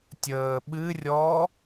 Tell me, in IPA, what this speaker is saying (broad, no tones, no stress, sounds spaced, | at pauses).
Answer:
tʲ əː ɓ ɨ rʲ ɔ